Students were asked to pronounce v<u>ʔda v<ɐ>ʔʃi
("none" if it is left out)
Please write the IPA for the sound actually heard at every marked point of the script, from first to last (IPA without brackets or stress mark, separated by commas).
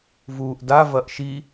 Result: uː, ɐ